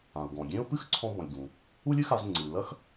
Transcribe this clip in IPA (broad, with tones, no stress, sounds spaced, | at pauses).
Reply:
ã˩ ʊ̯ ɡ ɔ̃˩ ɡʲ ẽ˥ ʊ̯ p ɨ˥ x ǀʰ ɔ̃˧ b ɔ̃˩ lʲ ɡ ũ˩ | u˥ lʲ ɨ˥ x a˧ z ŋ͡ǀ ɨ˩ l ɐ˥ x